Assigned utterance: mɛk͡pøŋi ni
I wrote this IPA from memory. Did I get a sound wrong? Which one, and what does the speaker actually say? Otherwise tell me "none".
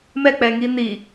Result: ø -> ɛ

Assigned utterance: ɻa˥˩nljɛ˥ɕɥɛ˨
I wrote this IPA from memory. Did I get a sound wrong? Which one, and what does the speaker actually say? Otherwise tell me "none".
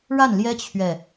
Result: ɕ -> t͡ɕʰ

